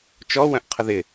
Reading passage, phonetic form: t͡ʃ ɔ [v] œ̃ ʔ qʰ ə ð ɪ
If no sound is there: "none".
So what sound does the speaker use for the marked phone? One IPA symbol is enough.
w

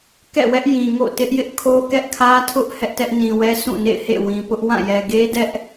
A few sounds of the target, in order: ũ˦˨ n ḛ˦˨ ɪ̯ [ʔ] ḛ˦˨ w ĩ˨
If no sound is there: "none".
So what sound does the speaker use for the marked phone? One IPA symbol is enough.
h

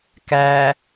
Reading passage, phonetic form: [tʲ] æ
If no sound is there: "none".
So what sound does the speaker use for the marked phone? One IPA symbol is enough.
k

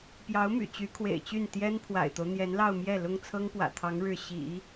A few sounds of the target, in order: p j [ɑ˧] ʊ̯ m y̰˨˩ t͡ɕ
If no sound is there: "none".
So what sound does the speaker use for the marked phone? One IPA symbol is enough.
ɑ˧˥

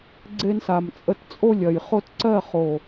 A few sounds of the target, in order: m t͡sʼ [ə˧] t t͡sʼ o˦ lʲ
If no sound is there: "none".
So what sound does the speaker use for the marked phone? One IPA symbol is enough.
ə˧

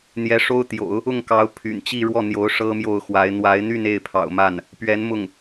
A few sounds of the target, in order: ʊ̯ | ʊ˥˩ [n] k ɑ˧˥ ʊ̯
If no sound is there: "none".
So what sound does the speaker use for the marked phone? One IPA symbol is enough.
ŋ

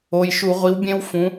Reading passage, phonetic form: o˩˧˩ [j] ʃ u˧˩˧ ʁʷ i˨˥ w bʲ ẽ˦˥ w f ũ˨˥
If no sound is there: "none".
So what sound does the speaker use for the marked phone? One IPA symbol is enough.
j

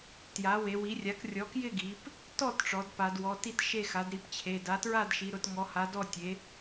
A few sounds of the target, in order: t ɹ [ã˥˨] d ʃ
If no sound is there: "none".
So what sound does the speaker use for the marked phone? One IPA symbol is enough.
a˥˨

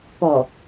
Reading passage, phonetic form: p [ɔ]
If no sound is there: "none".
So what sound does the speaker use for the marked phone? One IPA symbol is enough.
ɔ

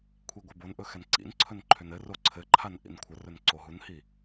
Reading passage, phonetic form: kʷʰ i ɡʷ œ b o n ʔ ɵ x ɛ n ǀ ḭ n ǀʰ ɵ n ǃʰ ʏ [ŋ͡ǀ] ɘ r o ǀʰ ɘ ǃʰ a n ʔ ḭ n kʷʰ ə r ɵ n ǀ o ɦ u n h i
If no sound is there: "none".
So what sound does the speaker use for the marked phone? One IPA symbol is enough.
n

